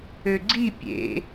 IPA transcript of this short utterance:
ø ɡ͡ǀ i pʲ ḛ

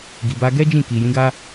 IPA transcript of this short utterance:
ɡ i˨ b a˧ ɡ ɛ˦ d͡ʒ ĩ˦˨ k i˨ j ĩ˨˦ ɡ a˦

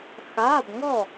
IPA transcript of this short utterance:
x aː˧˥˧ b ŋ ɔ˥˨

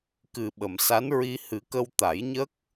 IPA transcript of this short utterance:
k ɨ˨˩ ɓ ə˨˩˨ m s a˧˥ n ɹ i˧ h ɨ˨˩˦ k ə˧ w t̪ a˨˩˦ j ɲ ə˦˥ k̚

